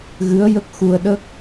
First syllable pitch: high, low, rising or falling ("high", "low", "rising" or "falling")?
rising